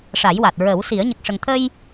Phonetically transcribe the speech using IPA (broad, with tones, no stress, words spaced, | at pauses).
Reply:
ʂa˨˩˦jwa˨˩t̚ ɹə˨˩˦wsi˨˩˦ə̯ ɲə˨˩k̚ʂə˨˩ŋt̪ʰə˧j